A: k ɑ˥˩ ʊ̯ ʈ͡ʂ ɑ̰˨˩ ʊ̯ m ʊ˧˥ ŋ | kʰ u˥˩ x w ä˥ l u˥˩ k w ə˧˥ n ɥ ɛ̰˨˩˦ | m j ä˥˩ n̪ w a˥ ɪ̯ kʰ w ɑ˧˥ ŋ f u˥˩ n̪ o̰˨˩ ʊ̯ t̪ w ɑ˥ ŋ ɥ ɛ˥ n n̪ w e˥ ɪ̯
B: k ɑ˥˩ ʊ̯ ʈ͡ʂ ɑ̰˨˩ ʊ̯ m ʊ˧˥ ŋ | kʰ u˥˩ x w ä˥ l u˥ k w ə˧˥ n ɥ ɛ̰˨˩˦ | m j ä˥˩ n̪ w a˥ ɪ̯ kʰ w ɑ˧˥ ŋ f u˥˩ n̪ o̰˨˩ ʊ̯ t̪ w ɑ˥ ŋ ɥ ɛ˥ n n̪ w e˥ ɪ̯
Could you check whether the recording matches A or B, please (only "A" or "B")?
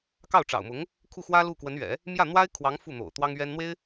A